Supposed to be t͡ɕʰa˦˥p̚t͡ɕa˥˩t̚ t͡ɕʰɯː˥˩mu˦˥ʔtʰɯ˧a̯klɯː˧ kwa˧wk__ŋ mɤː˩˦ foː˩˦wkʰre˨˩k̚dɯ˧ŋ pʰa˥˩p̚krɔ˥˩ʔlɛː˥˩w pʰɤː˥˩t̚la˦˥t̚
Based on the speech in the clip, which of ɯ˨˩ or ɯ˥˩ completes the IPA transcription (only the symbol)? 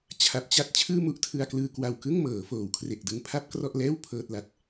ɯ˥˩